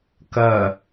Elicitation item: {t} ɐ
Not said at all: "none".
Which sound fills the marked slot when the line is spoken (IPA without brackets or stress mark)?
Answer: k